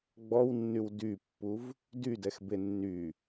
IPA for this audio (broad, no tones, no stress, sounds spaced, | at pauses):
ɡ͡b ɔ w nː y w d y pː u v | d y d ɛ x b e nː y